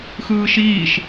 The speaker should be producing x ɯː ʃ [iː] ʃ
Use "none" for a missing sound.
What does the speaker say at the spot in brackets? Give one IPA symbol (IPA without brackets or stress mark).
iː